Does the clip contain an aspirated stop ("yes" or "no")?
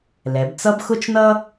no